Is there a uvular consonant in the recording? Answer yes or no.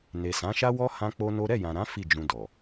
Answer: no